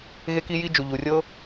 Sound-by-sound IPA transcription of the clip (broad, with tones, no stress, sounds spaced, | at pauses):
ɣ e˥ k i˥ j i˥ d͡ʒ u˩ ʎ u˩ rʲ ɤ˥